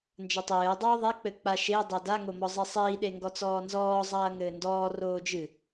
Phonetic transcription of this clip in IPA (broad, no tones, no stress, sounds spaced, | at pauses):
n d͡ʒ ɐ tˤ ɘː dˤ oː ðˤ e k͡p ɘ k͡p a ʃ e dˤ o d a ŋ o m ɔ zˤ e sˤ iː ɗ e ŋ ɡ ɔ t͡s ɔː n z ɔː zˤ ɐː ŋ ɘː n d ɔː r oː d͡ʒ ɨ